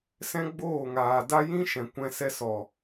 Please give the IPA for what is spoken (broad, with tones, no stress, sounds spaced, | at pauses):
s ɛ̃˦ ɡ͡b oː˦˨ ŋ aː˨ d a˦ j ĩ˦ ʃ ɛ̃˨ kʷ ɛ̃˧ s ɛ˧ s ɔ˨